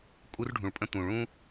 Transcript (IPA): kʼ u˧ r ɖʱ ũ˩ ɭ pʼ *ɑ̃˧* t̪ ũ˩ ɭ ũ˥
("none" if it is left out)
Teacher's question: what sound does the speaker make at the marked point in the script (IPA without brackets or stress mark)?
ə̃˧